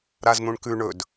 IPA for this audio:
ɾ a z n̪ ũ ɳ k ʉ ɳ ɵ d

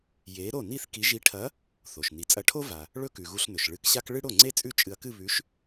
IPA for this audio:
j e˨˥ ɾ o˥˩ n i˥˧ θ k i˨˥ ʒ i˨˥ ʈʰ ɐ˨˥ | θ o˩ ʃ n i˩ t͡sʼ ɐ˨˥ ʈʰ o˥ v a˩ | ɭ ɵ˥ k ʉ˩ ɣ u˧ ɬ n ɵ˩ ʃ ɭ ɨ˨˥ k ɕ a˥ k ɭ ɨ˥ ɽ o˥˩ ŋ͡ǀ e˥ t͡sʼ ʉ˥ t͡ʃʼ ɨ˧ ɐ̯ k ɨ˥˧ β ʉ˨˥ ʃ

